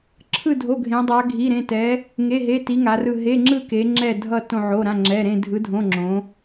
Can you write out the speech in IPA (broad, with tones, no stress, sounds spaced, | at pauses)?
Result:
ǁʰ ɯ˥˧ dʱ o˧˥˧ ɡʱ ẽ˧˥ dˤ a˧˥ ɡʱ i˧˥˧ ɾ ẽ˧˥˧ t ɛ˧˥ | ŋ e˧˥˧ ɦ e˧˥˧ t i˧˥ ŋ a˧˥ r ɯ˥˧ ɦ e˧˥˧ ŋ͡ǁ ɯ˥˧ k e˧˥ ŋ͡ǁ ɛ˥˧ dʱ ʌ˥˧ t õ˥˧ ʕ o˧˥˧ ɾ ã˧˥˧ ŋ͡ǁ ɛ˧˥˧ ɾ ẽ˥˧ dʱ ɯ˧˥ dʱ õ˧˥˧ ŋ͡ǁ õ˧˥